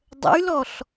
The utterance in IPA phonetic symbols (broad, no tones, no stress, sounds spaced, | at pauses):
dˤ ə̰ y̯ l ɔ ɬ